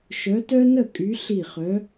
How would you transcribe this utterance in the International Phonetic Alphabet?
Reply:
ʃœ˨˦tœ˦nə˥˩kʼy˨˦ ɬi˧˩χœ˨˦

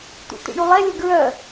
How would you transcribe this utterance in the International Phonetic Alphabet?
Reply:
t̪ṵt̪ḭɳulˠɛ lʲəɡɹœ

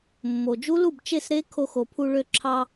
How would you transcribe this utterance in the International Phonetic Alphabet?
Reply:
mːo˩d͡ʒu˦˥lu˥˩b t͡ʃe˥˩sɾe˦˥ kʰo˧xo˩pʰu˧ ɭø˧ǁʰɑ˧

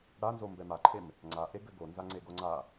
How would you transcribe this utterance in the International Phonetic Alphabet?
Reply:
ɽa nzombɛmaǃʰem | ŋ͡ǀaʔe ɡɘɡonza ŋ͡ǀeɡoŋ͡ǀa

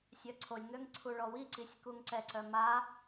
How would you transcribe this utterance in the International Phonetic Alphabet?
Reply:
sʲœǀʰolʲŋøŋ ǀʰuɭɔwiǀisʲ kuŋǀɛǀœ ma

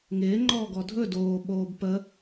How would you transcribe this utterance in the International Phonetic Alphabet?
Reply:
ŋɪː ŋ͡ǃɔːɡɔdʱɵ doː ɓoːbpə

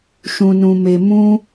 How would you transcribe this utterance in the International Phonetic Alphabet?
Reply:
ʃũ˧nũ˧me˧ mũ˦

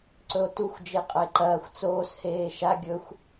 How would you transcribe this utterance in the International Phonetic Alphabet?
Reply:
ǀɵo̯tuxʷ d͡ʒeqʼɐe̯ǃɐːxʷ t͡soːs heːʃa ɡʲɵxʷ

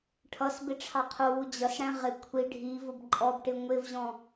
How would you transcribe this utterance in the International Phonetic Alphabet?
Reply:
ʈʰʌs bɪʈ͡ʂʰɑqʰʊwu d͡ʑʌsɽæ̃ ʁɪ kʷʰi ɖʱivʊb ǃʼɔbʈɪ ŋʷɪvʑɔ̃

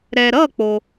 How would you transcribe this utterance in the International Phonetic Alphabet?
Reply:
ɾɛ˨ɾʌ˥˨ k͡po˨

